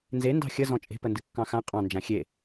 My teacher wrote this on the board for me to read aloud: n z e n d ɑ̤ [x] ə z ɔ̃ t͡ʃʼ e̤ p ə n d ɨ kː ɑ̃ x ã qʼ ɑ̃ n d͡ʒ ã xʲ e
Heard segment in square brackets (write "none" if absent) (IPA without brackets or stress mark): xʲ